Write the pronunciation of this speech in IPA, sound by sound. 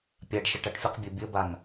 pʲ a ɖ ʃ ə ʈ a ʈ fʲ ə q bʲ ə bʲ ə b a n

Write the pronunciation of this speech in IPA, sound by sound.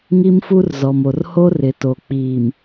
ŋ i˦ m f u˦ r z ɔ˨ m o˨ r h o˦ r ɪ˨˦ t o˨ k͡p iː˨ m

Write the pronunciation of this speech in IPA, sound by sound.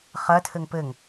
χ ɐ tʰ ɘ ŋ p ɘ ŋ

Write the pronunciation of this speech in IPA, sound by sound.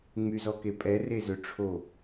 ŋ͡m y z ɔ k e pʼ ɛ r e z ø ʈ͡ʂʰ o

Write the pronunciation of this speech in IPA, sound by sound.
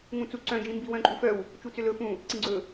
ŋ ũ t͡s u ǀ œ̃ d͡ʒ ĩ m b i w œ̃ ǃʼ u f œ w | t͡ʃ u t͡s ʏ l ɵ f ũ | ǀ ĩ ɡ͡ǀ ɵ

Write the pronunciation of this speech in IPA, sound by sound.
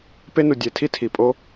p e˦ n u˨ dʲ e˨ tʰ i˦ tʰ i˨ pʼ o˦

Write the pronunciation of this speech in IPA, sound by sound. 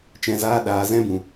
t͡ʃ ɛ̃˨ z aː˧ ɗ aː˨ z ɛ̃˦ b ũ˨

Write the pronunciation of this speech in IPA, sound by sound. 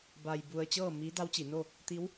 b a˧ j b u˧ ə̯ t͡ɕ ɤː˥˨ m i˧˥ d a˧˥ w t͡ɕ i˩˧ n o˥˨ | t̪ i˧˥ w

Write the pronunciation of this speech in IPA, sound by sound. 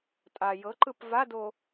tʼ a j ɤ ǃ ɯ p v a d o

